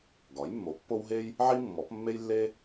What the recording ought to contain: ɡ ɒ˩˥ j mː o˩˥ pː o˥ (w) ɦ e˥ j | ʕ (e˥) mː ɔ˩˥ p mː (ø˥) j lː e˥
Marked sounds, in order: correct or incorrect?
correct, incorrect: i˥, incorrect: e˥

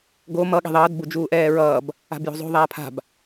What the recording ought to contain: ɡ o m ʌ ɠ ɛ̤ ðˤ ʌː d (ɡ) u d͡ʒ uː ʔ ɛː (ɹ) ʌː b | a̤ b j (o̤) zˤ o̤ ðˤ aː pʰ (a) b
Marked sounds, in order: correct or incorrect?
incorrect: b, correct, correct, incorrect: a̤

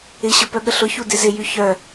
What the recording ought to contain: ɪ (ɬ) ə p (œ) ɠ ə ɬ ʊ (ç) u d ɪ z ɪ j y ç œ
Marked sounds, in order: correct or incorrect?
incorrect: ɕ, correct, correct

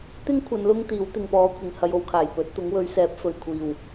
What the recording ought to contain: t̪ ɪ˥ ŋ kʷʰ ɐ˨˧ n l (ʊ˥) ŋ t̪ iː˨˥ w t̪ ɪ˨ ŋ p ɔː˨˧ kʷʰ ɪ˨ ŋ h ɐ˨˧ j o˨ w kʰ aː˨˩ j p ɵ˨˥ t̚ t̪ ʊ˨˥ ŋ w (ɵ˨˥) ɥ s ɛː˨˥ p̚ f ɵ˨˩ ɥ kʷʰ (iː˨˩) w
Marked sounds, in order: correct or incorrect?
correct, correct, correct

